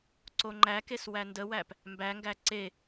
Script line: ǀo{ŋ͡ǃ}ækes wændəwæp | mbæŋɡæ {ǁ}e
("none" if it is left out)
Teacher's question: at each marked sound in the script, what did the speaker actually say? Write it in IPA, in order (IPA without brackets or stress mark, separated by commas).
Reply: ŋ͡ǃ, ǀ